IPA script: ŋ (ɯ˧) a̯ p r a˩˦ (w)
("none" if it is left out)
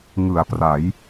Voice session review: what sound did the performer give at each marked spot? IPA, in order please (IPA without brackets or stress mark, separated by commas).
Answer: ɯ˩˦, j